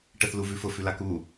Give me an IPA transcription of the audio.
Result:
ʈ ə θ l u v ʉ f ʊ f ʉ l a k u

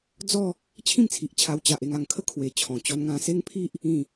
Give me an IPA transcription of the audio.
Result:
d͡z ɔ˥˧ | t͡ɕʰ ĩ˥˧ m t͡sʰ i˨ ʔ t͡ɕʰ a˧ w t͡ɕ a˨ ʔ e˧ ŋ a˨˩ ŋ kʰ ə˥˧ kʰ w e˨˩ t͡ɕʰ ɔ̃˨˩ t͡ɕ ɔ˧ n ŋ ã˧ s e˦ ŋ pʰ i˦ ʔ | ĩ˥˧

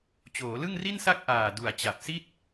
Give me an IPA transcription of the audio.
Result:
t͡ɕ oː˩˦ l ɯ˥˩ ŋ r i˥˩ n s a˥˩ k̚ ʔ aː˨˩ d u˨˩ a̯ t͡ɕ a˨˩ p̚ s i˥˩ t̚

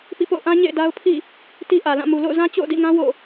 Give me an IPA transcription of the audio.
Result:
p ḭ˦˨ p o̰˦˨ ʊ̯ ʔ ã˦ ɲ ḛ˦˨ ɪ̯ d a˦ ʊ̯ pʰ ḭ˦˨ | t i˦ ʔ ä˨ l ã˦˨ m u˨ l o̰˦˨ ʊ̯ z ã˦ t͡ɕ o̰˦˨ ʊ̯ d ḭ˦˨ ŋ ã˦ w o̰˦˨

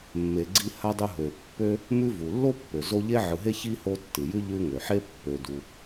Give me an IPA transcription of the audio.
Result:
mː e˨ ɡ͡ǀ i˦ h a˥ dˤ u˦ ɦ ø˩ pː ø˥ | m ʉ˦ v u˩ lː o˥ pː ø˩ z o˦ ʎ e˥ ʕ ɯ˨ ɦ e˥ ç i˥ h o˦ tː ɨ˩ j ʉ˥ ʎ ʉ˦ ŋ ø˩ ħ e˥ pː ø˨ d u˨

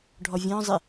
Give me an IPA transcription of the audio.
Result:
ɖʱ ɔ vʲ ɔ̃ zˤ ɪ

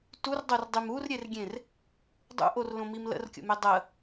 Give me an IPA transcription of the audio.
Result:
t u r dˤ o r dˤ i m u r ɾʲ e r ɡʲ ẽ r | dˤ ṵ ʔ o r l õ m i m l ə̰ r kʲ o̰ m e dˤ ə

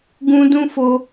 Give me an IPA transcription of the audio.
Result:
ɡ ũ˧ d ũ˦ f o˧

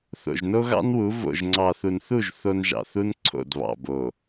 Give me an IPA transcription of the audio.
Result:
θ o̰˨ ʒ n o˦ ɣ ɑ̰˦ n w u˨˦ v o̰˨ ʒ ŋ͡ǀ ɑ˨ θ u˨ n θ u˦˨ ʒ θ o˦ n ʒ ɑ̰˨ θ u˦ n ǀʰ o̰˦˨ d β ɑ̰˨ b o˨

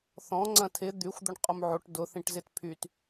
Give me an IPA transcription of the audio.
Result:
θ ɔ̃ ŋ͡ǀ ɐ̃ tʰ ɪ d̪ y xʷ d̪ ʊ ɳ qʼ ʊ m ʕ o ʈ d ʊ θ ĩ ʈ z ɪ t pʰ y t

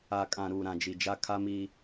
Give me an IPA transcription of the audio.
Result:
a˨ kʼ ã˨ ɾ uː˨ ɾ ã˨ d͡ʒ i˨ d͡ʒ a˦ kʰ a˦ m i˦

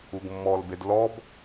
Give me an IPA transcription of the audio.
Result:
u ɡ mː ɔ l b e d l ɔ b

